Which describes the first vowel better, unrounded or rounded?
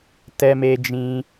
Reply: unrounded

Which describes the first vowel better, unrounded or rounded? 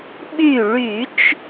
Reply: rounded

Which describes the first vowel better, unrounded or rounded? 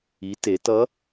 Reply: unrounded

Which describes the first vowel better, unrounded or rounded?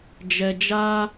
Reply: unrounded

